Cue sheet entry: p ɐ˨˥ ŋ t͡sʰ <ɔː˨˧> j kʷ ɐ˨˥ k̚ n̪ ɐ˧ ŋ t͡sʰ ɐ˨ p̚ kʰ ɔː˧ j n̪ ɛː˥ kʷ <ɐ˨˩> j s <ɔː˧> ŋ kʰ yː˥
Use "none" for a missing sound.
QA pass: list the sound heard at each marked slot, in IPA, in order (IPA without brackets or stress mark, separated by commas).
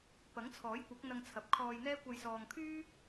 ɔː˨˥, ɐ˧, ɔː˨